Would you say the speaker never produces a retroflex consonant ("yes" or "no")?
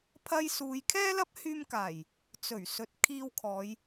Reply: yes